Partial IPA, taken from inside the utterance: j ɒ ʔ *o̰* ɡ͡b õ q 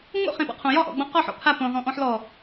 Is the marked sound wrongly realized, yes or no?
yes